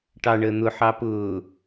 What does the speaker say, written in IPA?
ʈɑɳəː n̪ʊħɑ pʊː

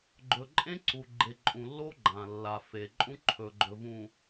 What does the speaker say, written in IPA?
ɡ͡ǃɵ˨ǃʼẽ˦ ǀu˨ɡ͡ǃe˨ǃʼũ˨lːo˦ ɡ͡ǃã˨lːa˨ fe˨ ǃʼũ˦ǃʰɵ˨ɡ͡ǃɵ˨ vũ˨

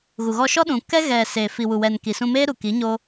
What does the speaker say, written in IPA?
ɣu˨ɣɔ˧ʃɔ˦ ɗũ˨kɛ˦ ɣɛ˨ seː˨fi˨wu˨wɛ˨n ki˨sũ˧meː˦ ɾu˨ki˨˦ɲo˦

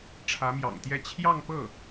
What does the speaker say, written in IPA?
ʈ͡ʂʰä˧˥mjɑ̰˨˩ŋt̪jɛ˥˧ t͡ɕʰjɑ˥˧ŋpɤ˥˩

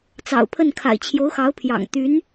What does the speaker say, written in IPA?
t͡sɑ̰˨˩ʊ̯pʰə˥˩nkʰa̰˨˩ɪ̯ t͡ɕʰjo˧˥ʊ̯xɑ˧˥ʊ̯pʰjɑ̰˨˩ŋ t̪y˧˥n

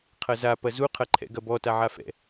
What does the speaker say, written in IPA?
qʰɐza pɐzu qʰɐǃʰɛ̰ɡɐbɔ taʕafɛ̰

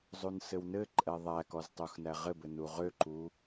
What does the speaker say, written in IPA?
zˤunsɘwnɘǃʼɛ ðˤækɔz tˤuxnæʁɘbɘ nuʁøǃu

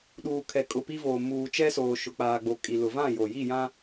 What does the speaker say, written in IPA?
ɗuː˨ kʰɛ˨ kʼʊ˨pi˦voː˨ muː˨t͡ʃɛ˦soː˨ ʃʊ˨k͡paː˨ɡ͡bo˨ kʼi˨lʊ˨ vã˦˨jo˨ji˦˨jã˦

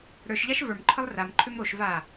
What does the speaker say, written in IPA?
ɾə˞ʃ ʎaʃvə˞mǃʰɯlˠ ram ǃʰømɾoʃ va

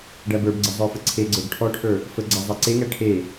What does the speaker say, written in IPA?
ɖæbə˞bɡ͡ǀə zˤə˞fəǀʰeɡ͡ǀə˞ɡ ʈʰɔʈʰə˞ | fəɡ͡ǀæ zˤæǀeŋæ ʈʰe

